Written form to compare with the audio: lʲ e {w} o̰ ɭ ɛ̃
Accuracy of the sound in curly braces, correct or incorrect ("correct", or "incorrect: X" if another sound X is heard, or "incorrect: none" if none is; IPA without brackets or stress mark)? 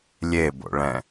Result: incorrect: b